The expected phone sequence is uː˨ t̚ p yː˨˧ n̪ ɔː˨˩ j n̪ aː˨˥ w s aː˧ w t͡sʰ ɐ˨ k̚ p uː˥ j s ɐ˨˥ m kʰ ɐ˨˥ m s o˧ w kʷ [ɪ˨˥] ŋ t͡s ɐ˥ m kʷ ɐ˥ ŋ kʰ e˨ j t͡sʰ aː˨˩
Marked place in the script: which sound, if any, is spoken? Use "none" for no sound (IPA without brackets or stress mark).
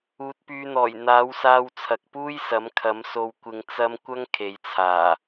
ɪ˧